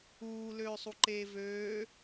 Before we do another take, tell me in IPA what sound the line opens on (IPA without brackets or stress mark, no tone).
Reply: uː